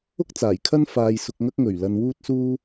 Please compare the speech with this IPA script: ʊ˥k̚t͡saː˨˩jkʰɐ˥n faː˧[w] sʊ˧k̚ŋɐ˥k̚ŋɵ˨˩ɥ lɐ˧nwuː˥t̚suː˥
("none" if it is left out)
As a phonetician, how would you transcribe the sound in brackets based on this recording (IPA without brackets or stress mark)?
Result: j